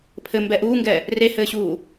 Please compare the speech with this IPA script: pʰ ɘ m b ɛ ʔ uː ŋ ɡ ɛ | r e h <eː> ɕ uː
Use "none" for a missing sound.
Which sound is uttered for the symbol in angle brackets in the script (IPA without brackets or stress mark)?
ɘː